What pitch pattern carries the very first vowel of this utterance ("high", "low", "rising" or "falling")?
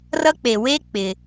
high